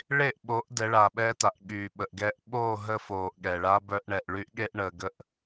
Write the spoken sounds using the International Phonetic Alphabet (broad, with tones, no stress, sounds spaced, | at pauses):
ɭ e˦˨ ʔ ɓ o˨˦ ʔ d ɛ˨˦ ɭ aː˨ ɓ ɛː˦ t a˨ ʔ ɠ yː˨ ɓ ə˨ ʔ ɡ ɛː˦ ʔ ɓ oː˦˨ ɦ ə˦ f oː˨ ʔ ɠ ɛ˨ ɭ aː˦ b œ˦ ʔ ɳ ɛ˨ ʔ ɭ y˦ ʔ ɠ e˦ ʔ ɳ əː˨ ɡ ə˦ ʔ